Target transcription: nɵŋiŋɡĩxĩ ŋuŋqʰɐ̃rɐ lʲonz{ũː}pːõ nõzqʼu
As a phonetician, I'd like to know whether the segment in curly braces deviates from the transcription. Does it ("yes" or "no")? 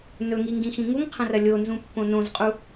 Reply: yes